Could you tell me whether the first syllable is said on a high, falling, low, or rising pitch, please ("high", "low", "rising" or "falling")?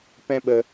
high